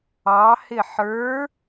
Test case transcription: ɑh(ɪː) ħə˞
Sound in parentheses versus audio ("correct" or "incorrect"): incorrect